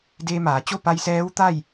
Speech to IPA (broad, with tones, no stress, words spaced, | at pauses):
deː˧ maː˩˧t͡ɕo˥˨ pa˧j sɛː˧˥wt̪a˥˨j